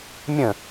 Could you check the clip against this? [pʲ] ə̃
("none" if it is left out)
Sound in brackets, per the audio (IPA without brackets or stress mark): mʲ